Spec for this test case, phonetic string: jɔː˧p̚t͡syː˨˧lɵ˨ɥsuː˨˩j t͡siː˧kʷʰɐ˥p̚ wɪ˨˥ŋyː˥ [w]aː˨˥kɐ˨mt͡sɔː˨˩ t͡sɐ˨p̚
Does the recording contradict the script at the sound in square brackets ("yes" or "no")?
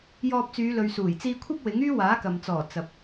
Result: no